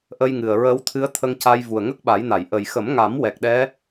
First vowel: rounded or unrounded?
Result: unrounded